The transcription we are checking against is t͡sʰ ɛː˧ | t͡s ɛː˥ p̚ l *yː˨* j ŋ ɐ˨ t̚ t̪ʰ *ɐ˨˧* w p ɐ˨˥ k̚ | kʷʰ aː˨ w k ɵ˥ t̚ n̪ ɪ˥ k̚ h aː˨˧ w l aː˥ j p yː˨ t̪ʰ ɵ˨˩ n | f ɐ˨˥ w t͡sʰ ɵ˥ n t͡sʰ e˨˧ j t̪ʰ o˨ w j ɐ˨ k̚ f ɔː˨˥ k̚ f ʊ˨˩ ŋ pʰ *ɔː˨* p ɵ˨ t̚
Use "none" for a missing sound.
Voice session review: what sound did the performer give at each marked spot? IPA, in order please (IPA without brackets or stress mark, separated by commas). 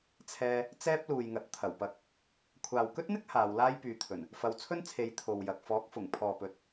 uː˨, ɐ˨˩, ɔː˨